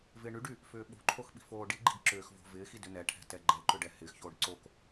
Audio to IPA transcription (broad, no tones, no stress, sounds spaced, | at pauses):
v ɪː ɳ y ɖ y | f ʏː ɓ o̤ ǃʰ o x ɓ i̤ f oː ɖ i ɡ͡ǃ i̤ ɡ ǁ ʏː x v o̤ v ɪː x i d ʏ n ɛ ʈʰ ɛ̤ t ɛ ɡ͡ǃ ɛ ǃ ʏ ɖ ɛ h ɪː x ç oː ɖ ǀ o k